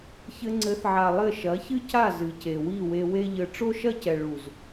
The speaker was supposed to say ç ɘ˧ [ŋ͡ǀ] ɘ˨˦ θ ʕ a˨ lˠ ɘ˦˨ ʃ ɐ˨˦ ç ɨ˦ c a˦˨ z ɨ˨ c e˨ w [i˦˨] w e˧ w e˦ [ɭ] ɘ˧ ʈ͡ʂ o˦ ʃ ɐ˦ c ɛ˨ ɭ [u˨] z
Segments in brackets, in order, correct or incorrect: correct, correct, incorrect: ʎ, correct

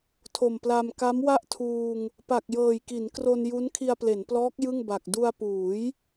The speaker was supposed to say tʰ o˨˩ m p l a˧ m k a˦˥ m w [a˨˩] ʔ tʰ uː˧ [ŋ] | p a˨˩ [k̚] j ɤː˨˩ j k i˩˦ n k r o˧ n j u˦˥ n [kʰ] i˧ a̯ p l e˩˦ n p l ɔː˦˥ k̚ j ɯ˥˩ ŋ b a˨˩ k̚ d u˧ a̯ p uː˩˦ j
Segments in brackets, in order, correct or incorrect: incorrect: a˥˩, correct, correct, correct

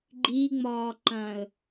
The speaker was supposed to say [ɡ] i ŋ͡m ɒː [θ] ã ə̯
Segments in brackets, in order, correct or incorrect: incorrect: ɡ͡ǃ, incorrect: ǃ

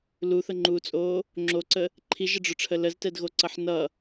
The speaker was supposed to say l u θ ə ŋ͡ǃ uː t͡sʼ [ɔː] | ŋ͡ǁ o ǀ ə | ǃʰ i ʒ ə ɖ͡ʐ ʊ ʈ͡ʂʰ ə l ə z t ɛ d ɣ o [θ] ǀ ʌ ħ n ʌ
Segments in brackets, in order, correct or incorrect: incorrect: oː, incorrect: none

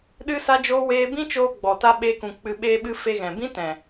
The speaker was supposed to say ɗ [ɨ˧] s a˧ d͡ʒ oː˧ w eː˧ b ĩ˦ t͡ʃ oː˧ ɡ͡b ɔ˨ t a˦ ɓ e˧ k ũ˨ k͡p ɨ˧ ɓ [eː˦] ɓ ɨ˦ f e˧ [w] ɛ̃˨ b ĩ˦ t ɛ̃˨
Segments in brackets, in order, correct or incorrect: correct, correct, incorrect: ɣ

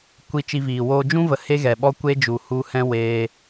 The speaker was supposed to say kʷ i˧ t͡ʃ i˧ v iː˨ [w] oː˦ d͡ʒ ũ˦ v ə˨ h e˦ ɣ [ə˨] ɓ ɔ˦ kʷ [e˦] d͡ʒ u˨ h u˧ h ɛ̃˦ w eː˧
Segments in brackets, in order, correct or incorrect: correct, incorrect: ɛ˨, correct

